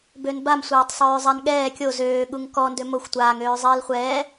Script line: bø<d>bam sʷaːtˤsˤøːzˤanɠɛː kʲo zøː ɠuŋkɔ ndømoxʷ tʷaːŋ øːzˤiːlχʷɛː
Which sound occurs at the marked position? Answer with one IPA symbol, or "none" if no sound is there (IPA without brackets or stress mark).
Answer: n